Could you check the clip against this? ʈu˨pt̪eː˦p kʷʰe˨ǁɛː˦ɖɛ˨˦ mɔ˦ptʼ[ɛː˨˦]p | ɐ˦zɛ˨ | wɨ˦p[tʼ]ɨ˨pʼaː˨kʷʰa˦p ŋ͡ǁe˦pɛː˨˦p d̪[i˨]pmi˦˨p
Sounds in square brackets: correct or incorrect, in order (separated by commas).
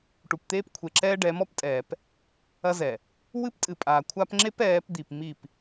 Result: incorrect, correct, correct